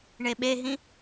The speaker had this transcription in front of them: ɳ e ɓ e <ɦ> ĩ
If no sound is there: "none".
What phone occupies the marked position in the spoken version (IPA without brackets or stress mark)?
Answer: ɦ